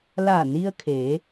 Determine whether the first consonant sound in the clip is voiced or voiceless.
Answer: voiced